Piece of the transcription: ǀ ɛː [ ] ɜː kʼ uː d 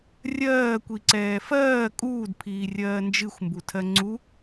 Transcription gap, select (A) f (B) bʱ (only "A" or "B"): A